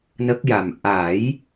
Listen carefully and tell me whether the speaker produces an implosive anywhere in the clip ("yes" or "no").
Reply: no